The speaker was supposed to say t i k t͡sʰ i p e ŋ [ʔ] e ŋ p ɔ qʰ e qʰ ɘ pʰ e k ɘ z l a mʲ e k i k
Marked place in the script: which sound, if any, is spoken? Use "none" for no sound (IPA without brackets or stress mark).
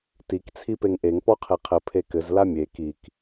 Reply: ʔ